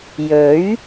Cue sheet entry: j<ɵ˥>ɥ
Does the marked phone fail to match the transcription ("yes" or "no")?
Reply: yes